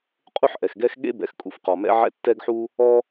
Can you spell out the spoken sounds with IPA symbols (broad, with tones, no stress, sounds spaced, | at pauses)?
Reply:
qʼ u˥ ħ ʔ ɛ˩ x ɡ ɛ˥ x ɠ ḛ˥ b ɛ̰˩ x kʼ ṵ˩ f q ɔ˩ m ɛ̰˥ ʕ ɛ̰˥ tː ɛ˥ ɡ ħ u˥ | ɔ˥